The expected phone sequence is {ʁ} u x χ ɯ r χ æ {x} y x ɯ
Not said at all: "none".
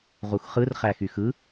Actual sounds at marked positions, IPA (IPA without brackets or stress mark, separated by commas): ʁ, x